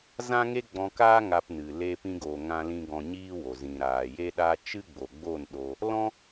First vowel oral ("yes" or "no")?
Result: no